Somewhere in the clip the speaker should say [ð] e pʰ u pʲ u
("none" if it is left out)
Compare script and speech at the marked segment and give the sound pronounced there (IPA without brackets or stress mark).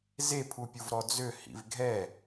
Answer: z